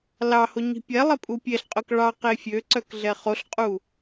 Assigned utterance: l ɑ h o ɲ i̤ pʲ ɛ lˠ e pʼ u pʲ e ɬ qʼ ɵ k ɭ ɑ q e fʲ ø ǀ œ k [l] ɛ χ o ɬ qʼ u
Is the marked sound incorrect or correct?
incorrect